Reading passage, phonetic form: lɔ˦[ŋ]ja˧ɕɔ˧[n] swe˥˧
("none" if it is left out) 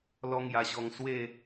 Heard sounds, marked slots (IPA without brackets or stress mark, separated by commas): ŋ, ŋ